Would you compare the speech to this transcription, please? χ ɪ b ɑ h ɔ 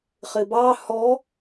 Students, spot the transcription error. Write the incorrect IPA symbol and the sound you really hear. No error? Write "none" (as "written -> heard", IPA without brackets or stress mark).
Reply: none